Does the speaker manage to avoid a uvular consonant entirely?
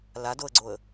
yes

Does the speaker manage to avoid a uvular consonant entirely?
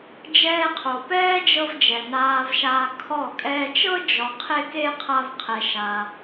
no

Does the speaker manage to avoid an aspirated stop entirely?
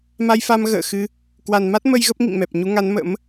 yes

